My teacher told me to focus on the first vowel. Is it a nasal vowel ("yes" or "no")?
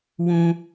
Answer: yes